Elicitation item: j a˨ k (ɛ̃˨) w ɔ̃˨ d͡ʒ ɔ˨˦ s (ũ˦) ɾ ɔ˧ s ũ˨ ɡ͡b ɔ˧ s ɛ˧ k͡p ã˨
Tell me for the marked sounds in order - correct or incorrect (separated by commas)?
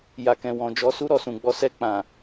correct, incorrect